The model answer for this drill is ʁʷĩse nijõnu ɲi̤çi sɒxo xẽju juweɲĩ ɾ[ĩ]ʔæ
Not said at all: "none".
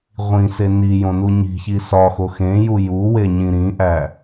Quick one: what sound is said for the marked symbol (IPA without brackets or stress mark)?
ĩ